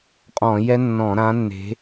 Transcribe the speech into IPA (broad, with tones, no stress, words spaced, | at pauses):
qʼɔ̃˧˩˧jɛ˦˥nːɔ̃˧˩˧ ɾã˨˦nːe̤˨˦